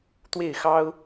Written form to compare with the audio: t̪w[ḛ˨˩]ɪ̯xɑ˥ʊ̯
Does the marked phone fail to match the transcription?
yes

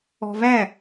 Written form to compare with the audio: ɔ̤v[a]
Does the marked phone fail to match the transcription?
yes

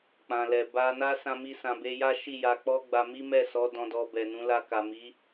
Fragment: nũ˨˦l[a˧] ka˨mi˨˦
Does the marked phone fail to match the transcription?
no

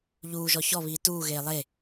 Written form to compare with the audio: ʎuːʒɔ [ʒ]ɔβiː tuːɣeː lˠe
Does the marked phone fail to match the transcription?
yes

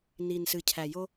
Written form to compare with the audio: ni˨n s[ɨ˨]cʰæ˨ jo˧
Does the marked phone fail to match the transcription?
no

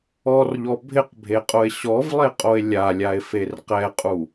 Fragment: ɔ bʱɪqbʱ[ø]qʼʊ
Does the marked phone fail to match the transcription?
yes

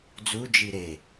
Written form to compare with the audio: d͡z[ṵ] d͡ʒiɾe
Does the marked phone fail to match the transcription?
yes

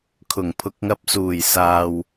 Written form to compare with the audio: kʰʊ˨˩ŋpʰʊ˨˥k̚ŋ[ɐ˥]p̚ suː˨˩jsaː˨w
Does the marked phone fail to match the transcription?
yes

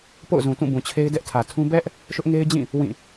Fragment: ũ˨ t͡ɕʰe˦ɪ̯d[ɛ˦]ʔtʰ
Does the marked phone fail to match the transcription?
no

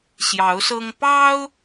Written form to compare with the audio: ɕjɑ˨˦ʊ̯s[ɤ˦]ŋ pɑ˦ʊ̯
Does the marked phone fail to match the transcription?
no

